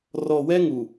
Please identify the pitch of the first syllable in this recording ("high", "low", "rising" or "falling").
low